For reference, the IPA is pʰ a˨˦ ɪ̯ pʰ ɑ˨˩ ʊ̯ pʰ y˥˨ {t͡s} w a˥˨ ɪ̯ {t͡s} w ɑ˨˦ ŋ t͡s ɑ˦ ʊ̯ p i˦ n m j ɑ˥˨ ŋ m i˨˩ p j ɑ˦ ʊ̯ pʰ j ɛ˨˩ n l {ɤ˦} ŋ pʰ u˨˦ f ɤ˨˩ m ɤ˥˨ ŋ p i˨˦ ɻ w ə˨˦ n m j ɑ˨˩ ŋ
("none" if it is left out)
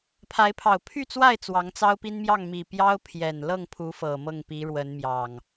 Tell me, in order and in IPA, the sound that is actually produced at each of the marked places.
t͡s, t͡s, ɤ˥˨

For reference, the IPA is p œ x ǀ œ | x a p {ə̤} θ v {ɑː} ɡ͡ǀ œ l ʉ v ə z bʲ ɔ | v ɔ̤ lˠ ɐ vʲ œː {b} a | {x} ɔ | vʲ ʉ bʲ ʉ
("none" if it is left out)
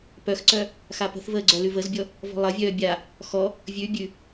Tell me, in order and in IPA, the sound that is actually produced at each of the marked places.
ə̤, əː, bʲ, x

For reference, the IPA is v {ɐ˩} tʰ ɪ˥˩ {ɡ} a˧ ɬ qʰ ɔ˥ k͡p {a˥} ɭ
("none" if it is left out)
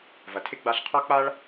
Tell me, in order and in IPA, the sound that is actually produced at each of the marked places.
ɐ˩, ɡ͡b, a˥

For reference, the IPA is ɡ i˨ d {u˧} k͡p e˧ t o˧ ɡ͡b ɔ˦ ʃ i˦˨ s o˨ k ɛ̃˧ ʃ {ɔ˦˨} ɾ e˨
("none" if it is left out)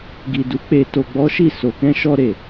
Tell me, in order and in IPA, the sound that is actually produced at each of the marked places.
u˨˦, ɔ˧

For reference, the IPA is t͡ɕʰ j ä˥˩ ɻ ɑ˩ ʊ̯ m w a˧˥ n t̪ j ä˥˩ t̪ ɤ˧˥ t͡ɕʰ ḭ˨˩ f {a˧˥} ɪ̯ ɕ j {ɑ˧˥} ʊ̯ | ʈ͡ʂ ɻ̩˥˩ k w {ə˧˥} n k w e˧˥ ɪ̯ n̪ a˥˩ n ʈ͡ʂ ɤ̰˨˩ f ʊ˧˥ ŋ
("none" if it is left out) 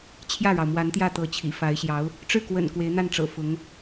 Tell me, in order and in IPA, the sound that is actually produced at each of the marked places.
a˧˥, ɑ˧˥, ə̰˨˩

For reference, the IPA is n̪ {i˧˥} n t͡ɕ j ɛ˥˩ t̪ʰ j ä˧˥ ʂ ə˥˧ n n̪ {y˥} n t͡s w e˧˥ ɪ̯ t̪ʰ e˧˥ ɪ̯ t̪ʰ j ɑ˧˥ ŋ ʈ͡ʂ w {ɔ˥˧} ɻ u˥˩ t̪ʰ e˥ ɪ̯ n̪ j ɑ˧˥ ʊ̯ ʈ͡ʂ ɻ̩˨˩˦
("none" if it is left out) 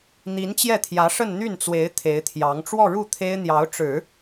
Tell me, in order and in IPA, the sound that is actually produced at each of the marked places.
i˧˥, y˥˩, ɔ˥˧

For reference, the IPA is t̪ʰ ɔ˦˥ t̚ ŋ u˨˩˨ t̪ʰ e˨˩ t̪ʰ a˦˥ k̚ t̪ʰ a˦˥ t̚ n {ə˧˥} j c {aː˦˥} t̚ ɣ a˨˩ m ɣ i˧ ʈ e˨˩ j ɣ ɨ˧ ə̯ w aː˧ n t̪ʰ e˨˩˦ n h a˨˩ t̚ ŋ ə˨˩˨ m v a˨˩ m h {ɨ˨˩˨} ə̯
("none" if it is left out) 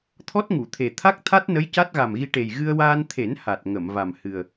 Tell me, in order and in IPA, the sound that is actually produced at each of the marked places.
ə˧˥, a˦˥, ɨ˨˩

